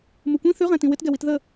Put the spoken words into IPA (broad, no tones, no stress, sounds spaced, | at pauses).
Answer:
m u kʷ ĩ θ ʉ ʁ ɛ̃ t ĩ w ɪ t ɡ ɛ w i t ð ə